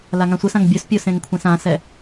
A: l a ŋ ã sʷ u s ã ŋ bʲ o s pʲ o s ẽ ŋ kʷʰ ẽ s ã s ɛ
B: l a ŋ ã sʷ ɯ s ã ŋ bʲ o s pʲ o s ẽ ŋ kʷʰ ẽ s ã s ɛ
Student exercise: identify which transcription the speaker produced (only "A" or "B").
B